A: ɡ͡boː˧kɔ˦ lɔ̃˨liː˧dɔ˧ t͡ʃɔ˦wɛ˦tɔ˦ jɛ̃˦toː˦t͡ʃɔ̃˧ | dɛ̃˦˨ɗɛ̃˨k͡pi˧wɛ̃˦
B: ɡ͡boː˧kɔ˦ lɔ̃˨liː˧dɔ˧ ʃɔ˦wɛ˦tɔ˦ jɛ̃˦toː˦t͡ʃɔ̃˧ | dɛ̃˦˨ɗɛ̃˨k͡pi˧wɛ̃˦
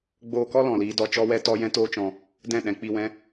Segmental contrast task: A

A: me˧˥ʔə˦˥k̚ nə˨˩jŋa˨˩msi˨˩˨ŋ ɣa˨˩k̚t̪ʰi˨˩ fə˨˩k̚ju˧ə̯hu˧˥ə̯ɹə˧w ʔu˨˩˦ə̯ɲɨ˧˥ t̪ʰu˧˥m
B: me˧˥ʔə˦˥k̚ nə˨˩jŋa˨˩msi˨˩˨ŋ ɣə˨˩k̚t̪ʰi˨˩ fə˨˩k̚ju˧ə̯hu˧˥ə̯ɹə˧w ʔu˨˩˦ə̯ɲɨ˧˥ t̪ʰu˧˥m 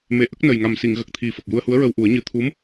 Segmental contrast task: B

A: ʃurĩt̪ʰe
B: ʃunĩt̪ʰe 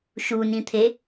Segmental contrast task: B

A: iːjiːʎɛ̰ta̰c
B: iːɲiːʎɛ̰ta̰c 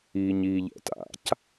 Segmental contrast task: B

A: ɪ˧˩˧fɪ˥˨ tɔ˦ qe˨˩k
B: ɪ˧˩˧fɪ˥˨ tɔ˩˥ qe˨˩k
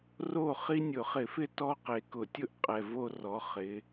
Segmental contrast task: A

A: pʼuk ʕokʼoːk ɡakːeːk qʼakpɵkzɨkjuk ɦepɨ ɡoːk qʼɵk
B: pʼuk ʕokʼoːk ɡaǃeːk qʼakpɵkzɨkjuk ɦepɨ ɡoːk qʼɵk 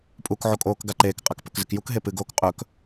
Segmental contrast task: B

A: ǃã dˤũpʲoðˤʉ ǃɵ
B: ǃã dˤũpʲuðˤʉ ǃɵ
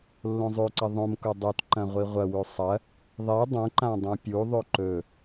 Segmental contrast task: B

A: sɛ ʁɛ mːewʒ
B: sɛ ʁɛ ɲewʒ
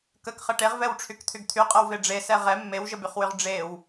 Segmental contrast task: A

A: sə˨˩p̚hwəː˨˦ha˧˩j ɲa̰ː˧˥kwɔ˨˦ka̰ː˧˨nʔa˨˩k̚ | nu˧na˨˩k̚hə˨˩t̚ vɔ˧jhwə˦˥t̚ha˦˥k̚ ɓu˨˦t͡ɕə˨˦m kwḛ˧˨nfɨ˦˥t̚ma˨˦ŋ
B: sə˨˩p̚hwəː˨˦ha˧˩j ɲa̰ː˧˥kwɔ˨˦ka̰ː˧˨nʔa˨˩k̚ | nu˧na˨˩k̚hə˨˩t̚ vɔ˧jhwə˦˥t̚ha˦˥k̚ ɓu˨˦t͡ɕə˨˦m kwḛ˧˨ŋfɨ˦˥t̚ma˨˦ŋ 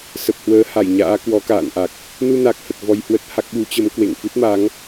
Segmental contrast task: B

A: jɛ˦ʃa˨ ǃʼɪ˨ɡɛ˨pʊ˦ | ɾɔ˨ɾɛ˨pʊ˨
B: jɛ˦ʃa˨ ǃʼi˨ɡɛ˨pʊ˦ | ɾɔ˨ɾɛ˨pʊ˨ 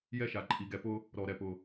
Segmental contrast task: B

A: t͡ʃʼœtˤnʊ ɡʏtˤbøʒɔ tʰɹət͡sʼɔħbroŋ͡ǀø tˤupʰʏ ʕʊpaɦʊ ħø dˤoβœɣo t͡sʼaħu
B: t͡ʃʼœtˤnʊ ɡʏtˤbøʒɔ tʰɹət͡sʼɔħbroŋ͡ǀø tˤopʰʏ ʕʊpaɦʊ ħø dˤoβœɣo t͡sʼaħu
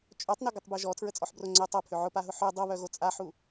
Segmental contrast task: B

